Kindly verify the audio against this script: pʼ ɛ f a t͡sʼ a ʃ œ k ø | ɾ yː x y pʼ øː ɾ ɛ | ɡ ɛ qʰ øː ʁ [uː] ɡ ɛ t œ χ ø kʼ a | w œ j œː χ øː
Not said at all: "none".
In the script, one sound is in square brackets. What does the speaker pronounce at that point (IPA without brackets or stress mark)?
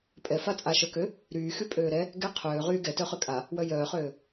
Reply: yː